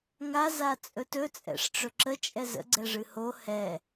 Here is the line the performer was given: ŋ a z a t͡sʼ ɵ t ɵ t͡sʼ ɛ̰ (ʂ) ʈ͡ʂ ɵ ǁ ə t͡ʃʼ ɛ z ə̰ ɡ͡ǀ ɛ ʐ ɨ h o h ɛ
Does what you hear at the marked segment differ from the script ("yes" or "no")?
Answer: no